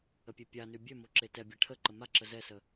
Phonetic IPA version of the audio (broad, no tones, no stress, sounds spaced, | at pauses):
ə pʲ e pʲ a n y bʲ ø m o ǁ e t ɛ bʲ ɛ ʈʰ ə ǃ ə m a ǁ ə z ɛ s ə